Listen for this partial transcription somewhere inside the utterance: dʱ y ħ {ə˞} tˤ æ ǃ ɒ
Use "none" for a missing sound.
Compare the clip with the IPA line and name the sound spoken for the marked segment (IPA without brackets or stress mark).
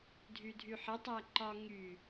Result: ə